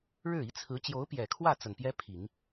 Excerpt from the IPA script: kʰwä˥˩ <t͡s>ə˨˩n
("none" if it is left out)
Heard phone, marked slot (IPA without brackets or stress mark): t͡s